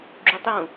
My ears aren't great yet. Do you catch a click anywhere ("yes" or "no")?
yes